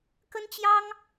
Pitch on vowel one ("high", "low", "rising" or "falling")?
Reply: high